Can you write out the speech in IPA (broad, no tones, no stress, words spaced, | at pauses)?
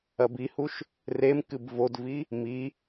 ɐbihuʃ | rem kɨbvodvi | mi